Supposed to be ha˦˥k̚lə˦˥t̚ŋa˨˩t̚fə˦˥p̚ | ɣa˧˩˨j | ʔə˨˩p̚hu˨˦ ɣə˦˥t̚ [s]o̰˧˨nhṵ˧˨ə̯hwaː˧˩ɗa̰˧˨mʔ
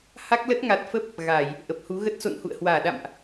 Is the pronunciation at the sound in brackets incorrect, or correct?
correct